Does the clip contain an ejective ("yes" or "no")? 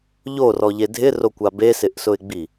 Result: no